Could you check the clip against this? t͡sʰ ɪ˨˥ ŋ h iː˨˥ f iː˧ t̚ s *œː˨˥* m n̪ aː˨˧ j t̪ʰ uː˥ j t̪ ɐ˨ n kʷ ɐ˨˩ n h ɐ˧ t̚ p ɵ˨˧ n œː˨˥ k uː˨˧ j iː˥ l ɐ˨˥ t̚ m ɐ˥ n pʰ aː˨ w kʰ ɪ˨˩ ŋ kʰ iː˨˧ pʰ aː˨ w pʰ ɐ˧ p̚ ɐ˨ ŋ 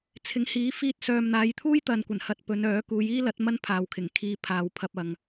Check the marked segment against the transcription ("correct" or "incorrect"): incorrect